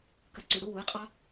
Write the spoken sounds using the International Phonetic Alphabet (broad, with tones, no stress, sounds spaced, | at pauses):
k ə˩˥ ǀ ʉ˩ ɽ u˧˥˧ w u˩˥ ɪ̯ qʼ ɑ˦˥